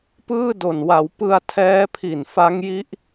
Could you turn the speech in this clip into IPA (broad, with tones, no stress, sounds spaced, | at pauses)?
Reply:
p ɯː˥˩ d o˨˩ n w a˩˦ w p ɯ˧ a̯ tʰ ɛː˦˥ pʰ i˨˩ n f a˦˥ ŋ j i˦˥ ʔ